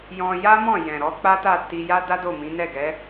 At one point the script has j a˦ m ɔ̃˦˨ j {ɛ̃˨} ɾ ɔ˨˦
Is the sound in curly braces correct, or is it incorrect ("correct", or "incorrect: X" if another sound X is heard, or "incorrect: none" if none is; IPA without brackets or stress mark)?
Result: correct